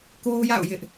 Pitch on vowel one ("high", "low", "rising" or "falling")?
high